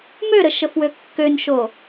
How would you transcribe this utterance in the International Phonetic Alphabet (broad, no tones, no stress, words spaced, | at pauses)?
møɾə ʃəfwøkːønʃo